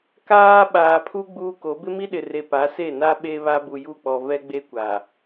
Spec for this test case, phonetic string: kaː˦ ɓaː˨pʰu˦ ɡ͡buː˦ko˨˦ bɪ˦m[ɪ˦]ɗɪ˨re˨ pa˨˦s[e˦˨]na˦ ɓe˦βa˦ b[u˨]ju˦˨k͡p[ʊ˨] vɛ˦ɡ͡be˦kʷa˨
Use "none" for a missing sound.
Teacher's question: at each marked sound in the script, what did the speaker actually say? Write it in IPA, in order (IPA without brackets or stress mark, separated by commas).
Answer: i˦, e˦˨, u˨, ɔ˨